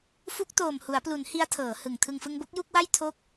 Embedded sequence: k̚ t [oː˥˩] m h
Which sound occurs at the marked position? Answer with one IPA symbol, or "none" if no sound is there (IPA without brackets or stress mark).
oː˨˩